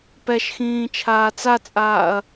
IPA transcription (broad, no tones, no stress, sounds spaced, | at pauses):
p ɛ ʃ x ĩː t͡ʃʰ aː t͡s a t͡sʼ aː ɐ̯